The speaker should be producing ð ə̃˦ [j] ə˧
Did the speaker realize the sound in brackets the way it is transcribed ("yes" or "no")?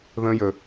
yes